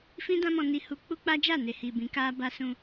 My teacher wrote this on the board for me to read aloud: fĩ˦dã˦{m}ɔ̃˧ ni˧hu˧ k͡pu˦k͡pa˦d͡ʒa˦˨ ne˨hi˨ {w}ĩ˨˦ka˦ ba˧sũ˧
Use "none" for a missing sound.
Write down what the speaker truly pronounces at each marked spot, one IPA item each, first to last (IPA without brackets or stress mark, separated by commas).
m, b